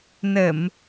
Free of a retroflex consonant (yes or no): yes